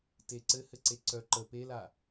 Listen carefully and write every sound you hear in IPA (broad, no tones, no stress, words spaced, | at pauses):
teǀɘhɘǀe ǀœ ǃə pela